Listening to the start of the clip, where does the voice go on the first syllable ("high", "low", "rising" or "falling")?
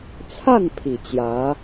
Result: falling